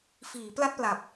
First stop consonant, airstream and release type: plain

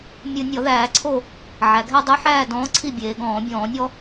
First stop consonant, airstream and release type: click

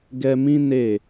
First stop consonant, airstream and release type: plain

